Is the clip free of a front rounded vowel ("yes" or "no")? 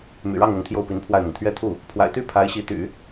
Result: no